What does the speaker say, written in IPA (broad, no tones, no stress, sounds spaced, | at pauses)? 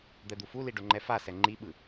d̪ ɛ d̪ u f u l i ɖ o ŋ͡ǃ ɛ f a s ɛ ŋ͡ǃ i ɓ ɯ